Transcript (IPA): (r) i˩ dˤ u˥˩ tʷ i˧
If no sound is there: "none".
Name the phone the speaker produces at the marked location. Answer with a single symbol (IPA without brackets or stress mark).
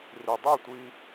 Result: r